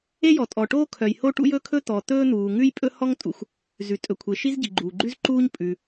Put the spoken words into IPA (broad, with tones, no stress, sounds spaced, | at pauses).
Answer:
e˥ j ɔ˩ tʼ ɔ˩ ʈ oː˥ kʰ œ˩ j h o˥ ʈ ṵ˥ j ɵ˥ kʰ ɵ˥ t̪ ɔ˩ t̪ ɵː˥ n̪ uː˩ ŋ ʉ˥ j pʼ ɵ˥ h ɔ˥ ŋ tʼ ṵ˩ xʷ | z ʉ˩ tʼ ɵ˩ kʷʰ e˩ ʃ i˥ z ɟ i˩ ɡ͡ǃ uː˩ ɡ͡ǃ ʉ˥ z ǃ uː˥ ɲ pʼ ʉ˩